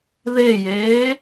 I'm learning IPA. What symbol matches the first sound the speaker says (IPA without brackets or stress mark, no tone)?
ð